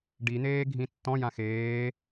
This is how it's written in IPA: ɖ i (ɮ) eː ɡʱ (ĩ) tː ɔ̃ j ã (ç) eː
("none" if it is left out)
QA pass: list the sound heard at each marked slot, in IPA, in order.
n̪, ĩ, x

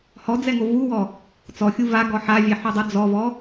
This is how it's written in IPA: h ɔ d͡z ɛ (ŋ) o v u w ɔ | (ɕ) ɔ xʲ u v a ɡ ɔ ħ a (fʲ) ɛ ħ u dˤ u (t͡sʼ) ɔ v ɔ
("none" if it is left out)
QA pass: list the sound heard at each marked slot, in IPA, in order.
ŋ, t͡s, vʲ, d͡z

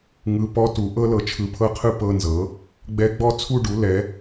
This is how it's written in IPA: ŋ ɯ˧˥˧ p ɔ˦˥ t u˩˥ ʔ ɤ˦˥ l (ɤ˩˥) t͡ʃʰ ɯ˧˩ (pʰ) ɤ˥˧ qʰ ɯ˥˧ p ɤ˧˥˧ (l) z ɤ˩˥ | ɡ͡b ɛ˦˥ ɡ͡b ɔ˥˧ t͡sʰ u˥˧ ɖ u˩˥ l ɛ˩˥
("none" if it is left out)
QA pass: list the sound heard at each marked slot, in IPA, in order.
ɤ˩˥, pʰ, n

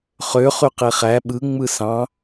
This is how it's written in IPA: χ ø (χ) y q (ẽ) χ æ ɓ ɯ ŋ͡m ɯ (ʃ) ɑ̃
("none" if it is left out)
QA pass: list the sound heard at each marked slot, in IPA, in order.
χ, e, s

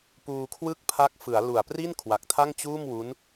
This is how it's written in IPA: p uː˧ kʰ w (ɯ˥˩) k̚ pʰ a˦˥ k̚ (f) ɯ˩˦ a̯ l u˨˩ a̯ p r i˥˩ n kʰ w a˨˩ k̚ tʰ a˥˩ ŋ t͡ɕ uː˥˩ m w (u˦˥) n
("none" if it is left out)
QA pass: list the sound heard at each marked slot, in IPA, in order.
ɯ˥˩, f, u˦˥

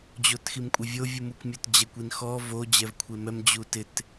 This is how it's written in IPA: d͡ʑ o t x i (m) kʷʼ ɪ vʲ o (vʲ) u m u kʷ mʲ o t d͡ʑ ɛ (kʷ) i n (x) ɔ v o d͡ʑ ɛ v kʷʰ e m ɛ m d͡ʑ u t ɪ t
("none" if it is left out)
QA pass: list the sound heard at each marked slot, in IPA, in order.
m, vʲ, kʷ, x

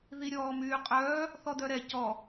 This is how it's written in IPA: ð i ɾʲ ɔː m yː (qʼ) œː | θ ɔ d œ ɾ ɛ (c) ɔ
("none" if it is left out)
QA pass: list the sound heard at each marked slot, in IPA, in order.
qʼ, c

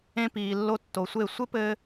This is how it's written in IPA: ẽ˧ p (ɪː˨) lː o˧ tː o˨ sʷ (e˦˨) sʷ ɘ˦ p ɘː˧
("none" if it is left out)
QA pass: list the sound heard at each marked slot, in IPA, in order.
iː˨, e˦˨

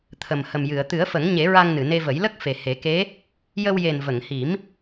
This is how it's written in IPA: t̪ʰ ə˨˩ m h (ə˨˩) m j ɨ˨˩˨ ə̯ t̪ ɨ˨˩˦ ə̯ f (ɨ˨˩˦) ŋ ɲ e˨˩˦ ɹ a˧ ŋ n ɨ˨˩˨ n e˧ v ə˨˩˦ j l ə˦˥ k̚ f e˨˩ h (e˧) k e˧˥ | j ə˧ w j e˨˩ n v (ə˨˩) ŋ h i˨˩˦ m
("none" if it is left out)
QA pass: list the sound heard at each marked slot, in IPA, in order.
ə˨˩, ə˨˩˦, e˨˩˦, ə˨˩˨

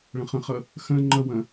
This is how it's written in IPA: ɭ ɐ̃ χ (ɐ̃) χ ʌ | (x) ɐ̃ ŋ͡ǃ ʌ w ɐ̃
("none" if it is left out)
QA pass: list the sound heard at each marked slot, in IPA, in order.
ə̃, x

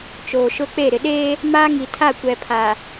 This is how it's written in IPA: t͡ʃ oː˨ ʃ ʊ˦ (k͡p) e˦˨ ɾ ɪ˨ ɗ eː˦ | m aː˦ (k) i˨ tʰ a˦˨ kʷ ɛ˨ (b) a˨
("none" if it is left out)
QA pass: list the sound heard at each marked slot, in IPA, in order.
k͡p, ŋ, pʰ

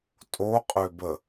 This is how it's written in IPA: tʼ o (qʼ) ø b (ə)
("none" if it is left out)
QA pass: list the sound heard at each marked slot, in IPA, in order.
qʼ, ə

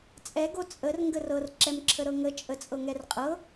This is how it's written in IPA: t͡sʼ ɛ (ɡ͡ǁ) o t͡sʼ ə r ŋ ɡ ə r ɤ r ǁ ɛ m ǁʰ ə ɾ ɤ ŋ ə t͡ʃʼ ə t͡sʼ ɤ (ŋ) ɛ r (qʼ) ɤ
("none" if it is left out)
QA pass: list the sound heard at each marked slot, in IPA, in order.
ɡ, ŋ, qʼ

